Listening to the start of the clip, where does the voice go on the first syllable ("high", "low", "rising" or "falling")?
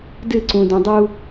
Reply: falling